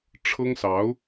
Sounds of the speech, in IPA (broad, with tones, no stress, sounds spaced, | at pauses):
ʈ͡ʂʰ ɤ˥ ŋ s ɑ˧˥ ʊ̯